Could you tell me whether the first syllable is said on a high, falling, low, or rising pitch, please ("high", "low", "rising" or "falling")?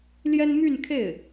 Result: high